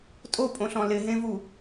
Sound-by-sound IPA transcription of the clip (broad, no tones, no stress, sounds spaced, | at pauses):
tʼ o pʼ õ ɬ ɔ̃ l ɪ ɦ ẽ v u